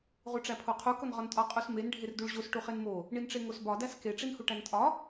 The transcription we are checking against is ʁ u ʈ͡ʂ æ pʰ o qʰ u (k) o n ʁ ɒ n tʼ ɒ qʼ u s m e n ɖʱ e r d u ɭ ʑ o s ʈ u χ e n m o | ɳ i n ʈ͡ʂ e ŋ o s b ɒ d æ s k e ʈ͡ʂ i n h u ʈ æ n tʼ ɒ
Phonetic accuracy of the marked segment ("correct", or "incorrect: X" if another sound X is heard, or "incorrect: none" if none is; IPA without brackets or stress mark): correct